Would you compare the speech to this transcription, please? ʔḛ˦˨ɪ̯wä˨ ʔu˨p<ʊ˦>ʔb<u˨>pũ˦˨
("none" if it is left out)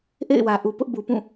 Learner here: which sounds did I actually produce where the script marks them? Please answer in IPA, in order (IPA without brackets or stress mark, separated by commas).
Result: ʊ˦, u˨